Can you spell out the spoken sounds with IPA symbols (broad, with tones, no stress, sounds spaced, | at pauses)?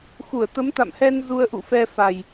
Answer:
x u˧˩ ə̯ t̪ ə˨˦ m t̪ a̰˧˨ m h ɛ˧ n z u˧ ə̯ ʔ ṵ˧˨ f ɛ˧ f a˨˩ j